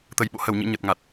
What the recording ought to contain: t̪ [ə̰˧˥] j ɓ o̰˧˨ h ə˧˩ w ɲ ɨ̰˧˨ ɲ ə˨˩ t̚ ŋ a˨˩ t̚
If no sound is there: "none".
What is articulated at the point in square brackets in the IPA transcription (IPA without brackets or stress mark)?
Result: ə˧˩